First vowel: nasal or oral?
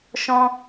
nasal